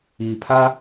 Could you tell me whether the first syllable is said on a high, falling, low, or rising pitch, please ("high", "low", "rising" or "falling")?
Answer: low